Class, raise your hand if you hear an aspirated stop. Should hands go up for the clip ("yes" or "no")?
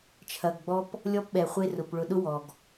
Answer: yes